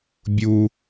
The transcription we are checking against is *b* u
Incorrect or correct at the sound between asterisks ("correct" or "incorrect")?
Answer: incorrect